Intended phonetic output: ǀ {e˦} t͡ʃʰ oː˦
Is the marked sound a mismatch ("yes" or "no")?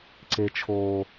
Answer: no